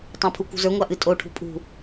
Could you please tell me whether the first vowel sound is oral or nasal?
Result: nasal